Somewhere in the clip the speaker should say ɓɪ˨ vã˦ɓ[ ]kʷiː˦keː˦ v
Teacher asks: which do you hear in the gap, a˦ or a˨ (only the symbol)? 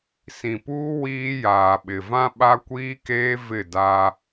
a˦